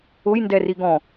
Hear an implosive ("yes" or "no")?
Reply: no